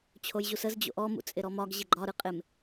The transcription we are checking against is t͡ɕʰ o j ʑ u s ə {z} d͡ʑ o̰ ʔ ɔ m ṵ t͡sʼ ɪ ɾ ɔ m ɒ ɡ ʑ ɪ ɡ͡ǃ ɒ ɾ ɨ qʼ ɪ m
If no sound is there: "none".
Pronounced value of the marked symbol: z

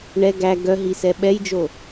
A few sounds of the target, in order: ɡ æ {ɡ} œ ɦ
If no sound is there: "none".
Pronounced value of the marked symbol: ɡ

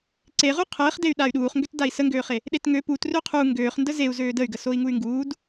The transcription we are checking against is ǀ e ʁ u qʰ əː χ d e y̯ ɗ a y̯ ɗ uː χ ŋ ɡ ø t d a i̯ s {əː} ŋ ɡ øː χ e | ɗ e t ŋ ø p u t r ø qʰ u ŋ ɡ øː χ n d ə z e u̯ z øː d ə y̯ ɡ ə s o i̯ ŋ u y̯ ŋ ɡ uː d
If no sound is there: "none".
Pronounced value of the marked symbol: ə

